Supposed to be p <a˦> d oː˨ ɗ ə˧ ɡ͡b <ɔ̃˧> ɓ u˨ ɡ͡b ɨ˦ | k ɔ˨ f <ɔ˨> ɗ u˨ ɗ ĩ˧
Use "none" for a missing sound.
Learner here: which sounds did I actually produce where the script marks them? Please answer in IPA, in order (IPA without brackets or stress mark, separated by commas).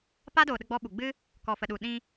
a˦, ɔ˧, ə˨